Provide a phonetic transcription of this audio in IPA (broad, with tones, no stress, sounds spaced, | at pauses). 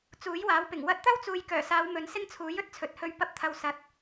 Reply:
t͡s uː˨˥ j w aː˨˥ w p ɪ˨˩ ŋ w ɐ˧ t̚ t̪ ɐ˥ w t͡s uː˨ j k œː˨˩ s aː˨˧ w m ɵ˨˧ n s ɪ˥ ŋ t͡sʰ uː˨˥ j ɵ˨˥ t̚ t͡sʰ ɵ˨ t̚ h ɵ˧ ɥ p ɐ˧ p̚ t̪ʰ ɐ˨ w s ɐ˨˥ t̚